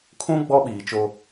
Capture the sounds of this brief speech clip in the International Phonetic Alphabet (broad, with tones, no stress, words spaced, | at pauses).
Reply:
kʰũ˦ ɡ͡bɔ˦ɓiː˨t͡ʃo˦